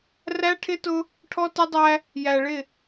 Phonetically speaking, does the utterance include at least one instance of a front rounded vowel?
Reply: no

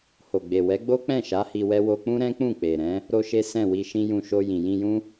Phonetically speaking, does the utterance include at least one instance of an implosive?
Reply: no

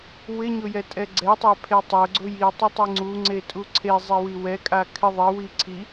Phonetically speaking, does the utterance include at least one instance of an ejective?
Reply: yes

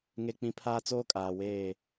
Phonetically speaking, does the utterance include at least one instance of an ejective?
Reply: yes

